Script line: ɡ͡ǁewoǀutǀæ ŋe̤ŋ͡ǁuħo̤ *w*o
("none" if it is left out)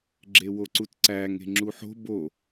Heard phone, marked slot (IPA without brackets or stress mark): b